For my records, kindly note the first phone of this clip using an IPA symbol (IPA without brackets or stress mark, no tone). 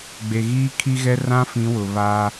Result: ɡ͡b